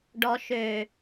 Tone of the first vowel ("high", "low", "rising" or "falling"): low